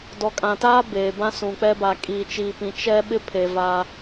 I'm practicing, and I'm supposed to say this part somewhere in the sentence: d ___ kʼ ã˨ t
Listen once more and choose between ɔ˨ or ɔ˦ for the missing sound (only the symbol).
ɔ˨